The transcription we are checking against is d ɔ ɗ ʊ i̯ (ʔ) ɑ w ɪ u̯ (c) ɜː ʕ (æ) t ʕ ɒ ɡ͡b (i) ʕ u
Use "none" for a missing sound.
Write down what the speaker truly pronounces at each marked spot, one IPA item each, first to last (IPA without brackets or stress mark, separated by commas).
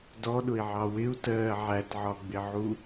ʕ, t, æ, ɪ